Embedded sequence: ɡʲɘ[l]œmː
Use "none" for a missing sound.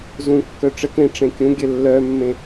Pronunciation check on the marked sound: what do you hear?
lː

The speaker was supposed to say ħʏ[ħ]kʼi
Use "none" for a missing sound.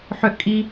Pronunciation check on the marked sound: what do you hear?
ʔ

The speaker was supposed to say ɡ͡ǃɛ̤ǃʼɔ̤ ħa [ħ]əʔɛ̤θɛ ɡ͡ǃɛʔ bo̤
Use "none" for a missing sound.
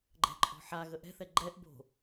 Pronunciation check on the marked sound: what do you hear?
ɣ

